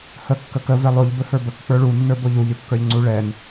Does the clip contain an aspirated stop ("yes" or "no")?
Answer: no